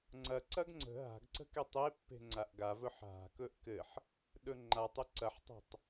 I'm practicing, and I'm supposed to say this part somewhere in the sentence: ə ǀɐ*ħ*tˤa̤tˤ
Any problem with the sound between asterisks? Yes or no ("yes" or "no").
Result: no